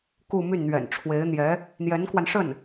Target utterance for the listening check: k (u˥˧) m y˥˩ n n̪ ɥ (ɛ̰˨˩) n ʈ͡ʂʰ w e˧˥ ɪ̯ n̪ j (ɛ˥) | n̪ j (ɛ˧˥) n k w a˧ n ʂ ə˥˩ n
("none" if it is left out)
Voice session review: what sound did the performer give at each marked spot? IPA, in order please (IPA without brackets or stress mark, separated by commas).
u˥˧, ɛ̰˨˩, ɛ˧˥, ɛ˧˥